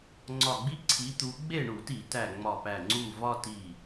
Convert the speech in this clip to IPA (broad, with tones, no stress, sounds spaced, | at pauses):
ŋ͡ǀ ɒ˧˩ ɡ͡b i˦ ǀʰ i˨˦ t̪ u˨˦ ɡ͡b e˥˨ ɳ u˧˩˧ t i˧˩˧ t æ˧˩ ŋ͡m ɒ˧˩ p æ˧˩ ŋ͡ǀ u˥˨ v ɒ˦ t i˧˩